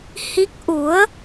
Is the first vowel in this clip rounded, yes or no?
no